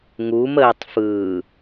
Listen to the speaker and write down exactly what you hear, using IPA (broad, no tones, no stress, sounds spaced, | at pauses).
ŋ u m əː tˤ f ɯː